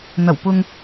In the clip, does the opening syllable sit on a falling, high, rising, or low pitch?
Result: low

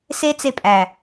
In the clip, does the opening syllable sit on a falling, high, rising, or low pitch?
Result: high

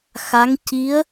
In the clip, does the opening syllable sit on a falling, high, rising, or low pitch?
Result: rising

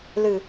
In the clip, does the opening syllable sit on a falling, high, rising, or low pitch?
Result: low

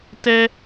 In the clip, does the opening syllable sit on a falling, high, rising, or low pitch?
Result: high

